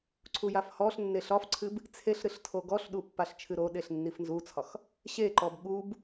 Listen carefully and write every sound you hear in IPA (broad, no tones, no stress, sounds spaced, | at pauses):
ǀʰ u j a f h ɔ ɬ nː e ɬ ɒ f ǀʰ ɨ b | t͡sʰ e ɬ ɾ ɨ ɬ tʰ o ɡ ɔ ɬ ɗ u pː a ɬ t͡ʃʰ ɨ ɾ o ɗ e ɬ nː i f n z u t͡sʰ ɒ x | ɕ e ǃ ɔ b ɠ u b